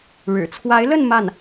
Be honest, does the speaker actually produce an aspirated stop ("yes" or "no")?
yes